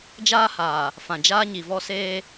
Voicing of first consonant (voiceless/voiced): voiced